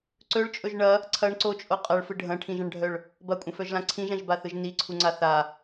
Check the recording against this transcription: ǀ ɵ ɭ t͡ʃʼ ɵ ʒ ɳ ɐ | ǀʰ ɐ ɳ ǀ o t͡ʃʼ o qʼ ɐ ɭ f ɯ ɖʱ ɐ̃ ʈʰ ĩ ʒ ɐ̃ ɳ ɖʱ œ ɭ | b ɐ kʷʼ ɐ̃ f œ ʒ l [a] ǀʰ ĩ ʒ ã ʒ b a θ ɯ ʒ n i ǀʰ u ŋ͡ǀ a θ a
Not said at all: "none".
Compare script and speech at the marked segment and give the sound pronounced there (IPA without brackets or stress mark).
ã